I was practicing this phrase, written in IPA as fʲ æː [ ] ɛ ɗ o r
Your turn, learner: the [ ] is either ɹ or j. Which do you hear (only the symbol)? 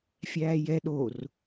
j